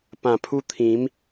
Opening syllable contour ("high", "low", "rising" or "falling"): low